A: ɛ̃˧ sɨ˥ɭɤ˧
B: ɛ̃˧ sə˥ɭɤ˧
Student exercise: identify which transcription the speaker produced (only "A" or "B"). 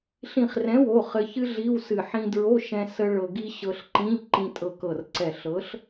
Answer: B